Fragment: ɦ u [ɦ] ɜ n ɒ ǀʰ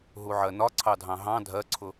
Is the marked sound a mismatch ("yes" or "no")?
yes